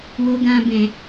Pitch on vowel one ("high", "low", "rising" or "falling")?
high